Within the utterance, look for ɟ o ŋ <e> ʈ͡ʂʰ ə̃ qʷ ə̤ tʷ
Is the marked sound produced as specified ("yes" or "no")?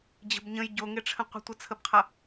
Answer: yes